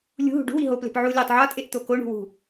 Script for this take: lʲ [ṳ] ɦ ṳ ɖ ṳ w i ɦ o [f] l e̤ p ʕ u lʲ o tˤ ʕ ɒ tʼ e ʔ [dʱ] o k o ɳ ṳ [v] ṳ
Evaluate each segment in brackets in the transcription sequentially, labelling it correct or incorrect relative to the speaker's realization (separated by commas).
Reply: correct, incorrect, incorrect, incorrect